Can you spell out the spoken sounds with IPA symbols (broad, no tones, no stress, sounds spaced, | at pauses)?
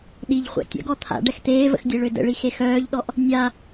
ɗ i ʎ χʷ a̰ tʲ ə̰ ɡ ɔ t̪ʰ a̰ ɖ ɛ x t̪ eː v ə̰ x dʲ e ɭ ø d ə̰ ɭ i x e x œː ʎ ɗ ɔ ʔ | nʲ a